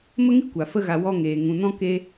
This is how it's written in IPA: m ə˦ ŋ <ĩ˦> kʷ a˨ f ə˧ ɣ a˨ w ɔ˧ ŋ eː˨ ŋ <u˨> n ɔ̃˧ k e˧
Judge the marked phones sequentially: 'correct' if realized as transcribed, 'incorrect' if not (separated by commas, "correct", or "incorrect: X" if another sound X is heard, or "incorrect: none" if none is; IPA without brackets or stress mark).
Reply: incorrect: i˦, incorrect: ũ˨